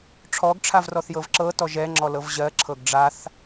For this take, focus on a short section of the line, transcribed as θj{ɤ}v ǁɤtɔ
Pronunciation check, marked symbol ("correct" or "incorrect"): correct